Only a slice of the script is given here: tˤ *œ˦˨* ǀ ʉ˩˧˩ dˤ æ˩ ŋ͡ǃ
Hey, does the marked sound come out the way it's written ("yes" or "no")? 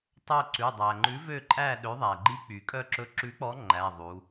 yes